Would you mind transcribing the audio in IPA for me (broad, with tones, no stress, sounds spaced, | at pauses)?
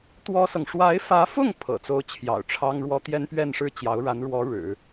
t̪ w ɔ˥ s ɤ˨ ŋ ʂ w a˧˥ ɪ̯ f ä˧˥ f ʊ˥˩ ŋ pʰ ɤ̰˨˩ t͡s o˥ ʊ̯ t͡ɕʰ j ɑ̰˨˩ ʊ̯ ʈ͡ʂʰ ɑ˥ ŋ ɻ w ɔ˥ t̪ j ɛ˥ n p ɥ ɛ˥˧ n ʂ ɻ̩˥˩ t͡ɕ j ɑ˧˥ ʊ̯ ɻ a˧˥ n ɻ w ɔ˧˥ ɻ ɻ̩˨˩˦